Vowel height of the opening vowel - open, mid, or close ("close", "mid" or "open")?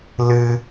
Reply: close